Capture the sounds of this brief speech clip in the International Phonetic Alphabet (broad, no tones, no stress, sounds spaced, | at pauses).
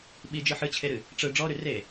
ɓ i d͡ʒ ɯ ħ ɨ t͡ɕʰ e ɾ ɨ | ʈ͡ʂ ɯ ɖ͡ʐ ɔ ɾ y r e